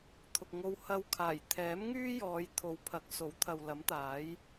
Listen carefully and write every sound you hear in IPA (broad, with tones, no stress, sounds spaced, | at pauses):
t̪ʰ ʊ˨ k̚ ŋ o˧ w h ɐ˧ w kʰ aː˨˩ j t̪ʰ ɛː˨˥ m ŋ yː˥ j ɔː˨˧ j t̪ʰ o˨˧ w pʰ ɐ˨˥ k̚ s o˨˥ w t̪ʰ ɐ˨ w l ɐ˨˥ m t̪ aː˨˥ j